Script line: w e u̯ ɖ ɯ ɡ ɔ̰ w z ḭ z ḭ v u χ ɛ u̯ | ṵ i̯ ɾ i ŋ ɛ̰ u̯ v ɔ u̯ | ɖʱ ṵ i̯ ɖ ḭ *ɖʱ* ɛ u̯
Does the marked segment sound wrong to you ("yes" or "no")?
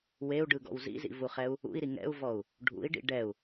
yes